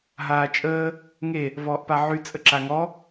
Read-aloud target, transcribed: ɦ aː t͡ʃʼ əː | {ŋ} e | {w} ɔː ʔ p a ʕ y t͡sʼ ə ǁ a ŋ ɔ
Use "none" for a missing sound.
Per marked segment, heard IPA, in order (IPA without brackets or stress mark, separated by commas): ŋ, v